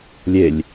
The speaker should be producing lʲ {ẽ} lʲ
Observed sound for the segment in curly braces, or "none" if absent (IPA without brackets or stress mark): e